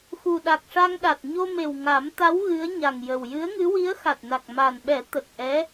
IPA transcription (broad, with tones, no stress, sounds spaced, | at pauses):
x u˨˩ ɗ a˨˩ k̚ ʂ a˧ ŋ ɗ a˨˩ t̚ ɲ o˧ m e˨˩ w ŋ a˨˩˦ m t̪ a˧˥ w ɣ ɨ˧˥ ə̯ ɲ a˨˩ ŋ j ə˨˩ w j ɨ˧˥ ə̯ ŋ ɨ˧˥ w i˧˥ ə̯ x a˨˩ t̚ n a˨˩ k̚ m a˨˩ n ɓ ɛ˨˩˦ t̪ ə˨˩ k̚ ʔ ɛ˧˥